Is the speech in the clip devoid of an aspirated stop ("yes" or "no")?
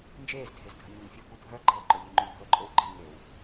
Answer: yes